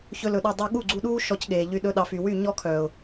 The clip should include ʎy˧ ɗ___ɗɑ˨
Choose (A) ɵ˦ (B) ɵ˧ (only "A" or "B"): B